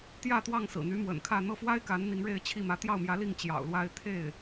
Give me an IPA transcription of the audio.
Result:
t̪ j ä˥˧ t̪ w ɑ˥˩ ŋ s ɹ̩˨˩ n̪ y˧˥ m w ə̰˨˩ n kʰ ä˥˧ n̪ ɤ˥˩ f w a˥ ɪ̯ k a˧˥ n n̪ i˧˥ ŋ ɻ e˥˧ ɪ̯ t͡ɕʰ i˥˩ m ä˧˥ t̪ j ɑ˥˩ ʊ̯ m j ä˧˥ l i˥˩ ŋ t͡ɕ j ɑ̰˨˩ ʊ̯ l w a˥ ɪ̯ t̪ʰ e˥˩ ɪ̯

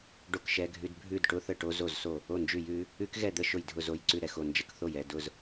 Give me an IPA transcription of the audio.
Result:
ɖ o˥˨ k ʃ ɛ˦˥ ɡʱ ʉ˦˥ d bʱ ʉ˥˨ d ʈ ʊ˦˥ θ ə˥˨ ʈ o˦˥ z o˥˨ z s o˥˨ | o˥˨ n d͡ʒ ʉ˥˨ j ʉ˦˥ | ʉ˦˥ k ɣ ɛ˥˨ d̪ ə˥˨ ʃ ʊ˥˨ j dʱ ʊ˥˨ z o˦˥ j ǀ ʉ˥˨ ɾ ɛ˥˨ x o˥˨ n d͡ʒ ə˦˥ k θ o˥˨ j ɛ˥˨ d ʊ˥˨ z

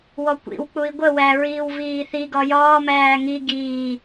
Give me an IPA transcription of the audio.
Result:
w ɔ kʷ ḭ w k͡p u i̯ ɡʷ ə w æ ɹ iː w v iː θ i ɡ ɒ j ɒː m æː ŋ i ɡ iː

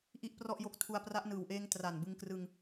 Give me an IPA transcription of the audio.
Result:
ʔ i˥˩ ʔ p r ɔ˥˩ ʔ j o˦˥ k̚ tʰ u˧ a̯ p r a˦˥ ʔ n ɯː˨˩ w ʔ eː˦˥ ŋ t r a˨˩ n b ɯ˧ ŋ k r ɯ˧ ŋ

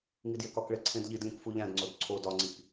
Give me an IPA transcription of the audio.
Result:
ŋ i d j e k ɒ k ɭ e ǀʰ ẽ d ʎ i d lʲ ũ k f u ʎ æ̃ d ŋ͡ǀ o d ǀʰ o d ɒ ŋ͡ǀ i k

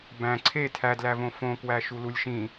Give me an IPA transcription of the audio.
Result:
b æ̃ ǀʰ e tʰ æ d l æ v õ f õ k w æ ʃ u l u lʲ ʃ ĩ

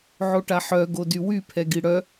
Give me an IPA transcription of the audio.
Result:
ʕ o ʈ a ħ œ ɡ o d y w y pʰ ɛ ɡ i ɽ œ

